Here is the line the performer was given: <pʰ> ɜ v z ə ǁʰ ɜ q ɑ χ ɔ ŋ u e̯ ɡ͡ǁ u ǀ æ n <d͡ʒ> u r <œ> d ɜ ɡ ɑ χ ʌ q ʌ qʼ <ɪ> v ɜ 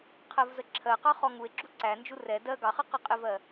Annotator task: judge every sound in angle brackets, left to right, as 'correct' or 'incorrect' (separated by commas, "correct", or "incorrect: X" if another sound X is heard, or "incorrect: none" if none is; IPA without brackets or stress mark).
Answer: incorrect: qʰ, correct, incorrect: ɛ, correct